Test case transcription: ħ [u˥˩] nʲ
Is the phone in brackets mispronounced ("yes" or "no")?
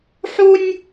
yes